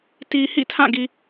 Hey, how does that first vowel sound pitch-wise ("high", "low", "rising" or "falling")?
low